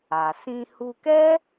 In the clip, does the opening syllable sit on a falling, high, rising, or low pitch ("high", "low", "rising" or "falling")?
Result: low